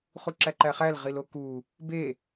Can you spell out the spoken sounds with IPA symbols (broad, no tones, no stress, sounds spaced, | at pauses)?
χ u ǁ æ ǃ æ χ æ l ʁ i l o k u | b e